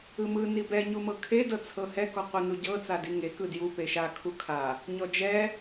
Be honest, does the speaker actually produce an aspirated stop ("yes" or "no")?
yes